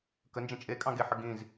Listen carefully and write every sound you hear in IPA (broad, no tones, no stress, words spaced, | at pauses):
kənd͡ʒə̃ t͡ʃʼekʼɑ̃ ɡeħə ɡĩz